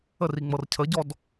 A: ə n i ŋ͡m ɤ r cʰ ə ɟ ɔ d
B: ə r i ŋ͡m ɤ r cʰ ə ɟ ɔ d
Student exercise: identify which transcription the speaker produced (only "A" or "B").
B